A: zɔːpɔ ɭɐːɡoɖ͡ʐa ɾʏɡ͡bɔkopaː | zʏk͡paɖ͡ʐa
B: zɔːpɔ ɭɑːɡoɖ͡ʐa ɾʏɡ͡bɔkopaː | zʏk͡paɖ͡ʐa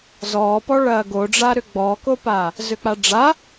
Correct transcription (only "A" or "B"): A